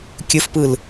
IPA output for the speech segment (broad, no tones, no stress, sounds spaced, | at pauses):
kʲ ɵ f p ɯ l